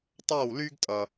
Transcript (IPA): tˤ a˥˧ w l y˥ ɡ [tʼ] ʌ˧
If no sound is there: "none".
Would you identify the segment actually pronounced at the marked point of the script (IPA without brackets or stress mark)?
tʼ